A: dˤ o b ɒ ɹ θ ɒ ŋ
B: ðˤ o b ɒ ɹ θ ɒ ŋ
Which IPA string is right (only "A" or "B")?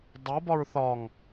A